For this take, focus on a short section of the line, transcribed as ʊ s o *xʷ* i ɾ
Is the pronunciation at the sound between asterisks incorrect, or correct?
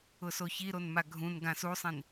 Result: incorrect